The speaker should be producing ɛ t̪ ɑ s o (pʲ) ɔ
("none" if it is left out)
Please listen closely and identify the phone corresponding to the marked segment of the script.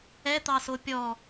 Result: pʲ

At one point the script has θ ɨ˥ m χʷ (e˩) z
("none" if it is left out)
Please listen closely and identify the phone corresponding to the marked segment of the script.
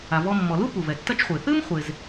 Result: e˩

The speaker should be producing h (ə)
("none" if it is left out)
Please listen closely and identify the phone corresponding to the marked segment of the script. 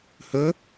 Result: ɵ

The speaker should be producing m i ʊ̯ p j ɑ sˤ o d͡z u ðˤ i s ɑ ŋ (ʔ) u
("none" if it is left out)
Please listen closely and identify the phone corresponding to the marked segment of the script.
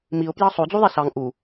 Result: ʔ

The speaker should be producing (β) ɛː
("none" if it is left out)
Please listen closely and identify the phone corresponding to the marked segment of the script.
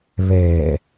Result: β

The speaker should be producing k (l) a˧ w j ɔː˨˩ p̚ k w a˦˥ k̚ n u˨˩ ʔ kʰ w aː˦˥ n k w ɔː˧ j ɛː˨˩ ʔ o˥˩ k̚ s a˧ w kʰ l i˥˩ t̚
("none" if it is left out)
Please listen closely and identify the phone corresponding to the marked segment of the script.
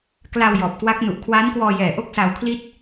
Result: l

